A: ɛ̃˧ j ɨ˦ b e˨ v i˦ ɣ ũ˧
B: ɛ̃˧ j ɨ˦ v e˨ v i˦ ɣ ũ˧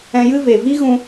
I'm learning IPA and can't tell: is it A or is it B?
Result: B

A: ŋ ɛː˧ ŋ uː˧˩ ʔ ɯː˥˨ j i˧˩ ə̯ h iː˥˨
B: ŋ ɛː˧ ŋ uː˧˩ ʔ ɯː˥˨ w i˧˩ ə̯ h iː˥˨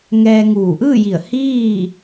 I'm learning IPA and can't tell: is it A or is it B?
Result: A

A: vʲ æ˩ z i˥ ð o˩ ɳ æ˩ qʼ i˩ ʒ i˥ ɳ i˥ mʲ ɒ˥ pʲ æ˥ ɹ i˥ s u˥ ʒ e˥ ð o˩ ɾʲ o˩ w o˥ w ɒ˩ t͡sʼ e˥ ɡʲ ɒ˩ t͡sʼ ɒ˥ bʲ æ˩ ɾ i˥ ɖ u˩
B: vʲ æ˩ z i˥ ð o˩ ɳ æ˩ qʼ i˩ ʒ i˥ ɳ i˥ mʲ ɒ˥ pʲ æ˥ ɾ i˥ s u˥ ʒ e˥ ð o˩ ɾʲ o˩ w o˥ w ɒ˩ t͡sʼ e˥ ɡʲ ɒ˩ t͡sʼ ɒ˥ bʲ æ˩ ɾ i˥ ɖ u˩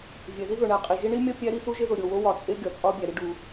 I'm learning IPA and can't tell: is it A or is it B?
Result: B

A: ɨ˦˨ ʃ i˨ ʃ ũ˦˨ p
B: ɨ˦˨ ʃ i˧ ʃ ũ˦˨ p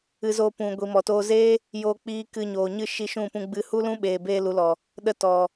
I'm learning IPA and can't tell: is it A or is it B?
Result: B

